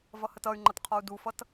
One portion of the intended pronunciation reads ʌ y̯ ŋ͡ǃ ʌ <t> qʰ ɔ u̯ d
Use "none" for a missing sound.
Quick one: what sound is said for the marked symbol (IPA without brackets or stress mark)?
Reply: t